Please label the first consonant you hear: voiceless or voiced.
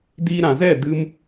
voiced